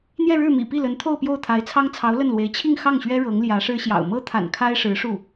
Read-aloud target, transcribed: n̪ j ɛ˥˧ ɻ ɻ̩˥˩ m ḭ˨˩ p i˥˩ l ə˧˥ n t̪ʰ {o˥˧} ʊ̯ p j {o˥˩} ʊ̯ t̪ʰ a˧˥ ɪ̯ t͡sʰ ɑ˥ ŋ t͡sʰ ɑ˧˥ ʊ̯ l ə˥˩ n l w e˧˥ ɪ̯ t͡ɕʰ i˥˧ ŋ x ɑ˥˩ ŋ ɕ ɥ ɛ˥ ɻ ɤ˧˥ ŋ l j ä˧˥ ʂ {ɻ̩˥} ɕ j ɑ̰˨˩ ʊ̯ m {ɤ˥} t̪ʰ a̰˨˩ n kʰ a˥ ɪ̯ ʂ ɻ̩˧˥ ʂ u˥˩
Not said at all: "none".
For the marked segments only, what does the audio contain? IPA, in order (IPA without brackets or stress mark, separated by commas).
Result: o˥˧, o˥˩, ɻ̩˥, ɤ˥